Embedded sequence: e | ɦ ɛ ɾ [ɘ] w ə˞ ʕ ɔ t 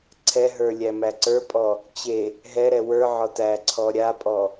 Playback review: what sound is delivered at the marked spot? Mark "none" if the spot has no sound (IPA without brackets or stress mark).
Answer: ɛ